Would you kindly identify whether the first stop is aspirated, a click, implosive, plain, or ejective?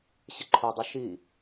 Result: click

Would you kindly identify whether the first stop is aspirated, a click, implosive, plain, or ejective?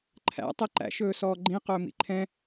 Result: click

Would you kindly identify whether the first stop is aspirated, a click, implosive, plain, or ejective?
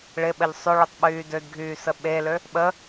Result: implosive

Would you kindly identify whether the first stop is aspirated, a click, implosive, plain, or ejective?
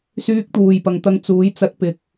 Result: plain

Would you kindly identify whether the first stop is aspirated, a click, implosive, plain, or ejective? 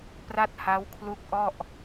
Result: plain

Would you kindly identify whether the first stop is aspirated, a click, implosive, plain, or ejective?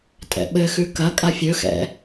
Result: ejective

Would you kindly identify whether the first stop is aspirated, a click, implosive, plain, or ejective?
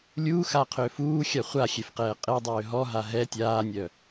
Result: aspirated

